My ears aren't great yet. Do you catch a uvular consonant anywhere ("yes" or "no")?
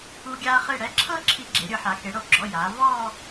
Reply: yes